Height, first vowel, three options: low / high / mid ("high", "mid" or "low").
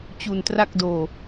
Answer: high